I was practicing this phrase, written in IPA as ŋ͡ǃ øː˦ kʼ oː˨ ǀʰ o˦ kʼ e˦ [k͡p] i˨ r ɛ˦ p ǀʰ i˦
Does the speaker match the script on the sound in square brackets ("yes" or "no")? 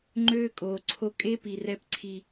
no